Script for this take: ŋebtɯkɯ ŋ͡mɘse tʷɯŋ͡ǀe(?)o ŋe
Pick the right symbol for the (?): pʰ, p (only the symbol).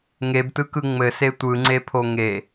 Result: pʰ